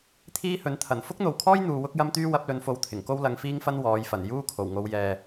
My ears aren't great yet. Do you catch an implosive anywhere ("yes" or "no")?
no